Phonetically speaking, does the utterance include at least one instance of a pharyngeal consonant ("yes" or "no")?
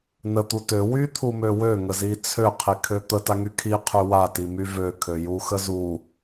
no